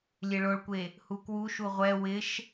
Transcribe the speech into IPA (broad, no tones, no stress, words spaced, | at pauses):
lʲeɭoɭkʷe | hukwuʃu ʁʷɛ wɪʃ